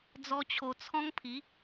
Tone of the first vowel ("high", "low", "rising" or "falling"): high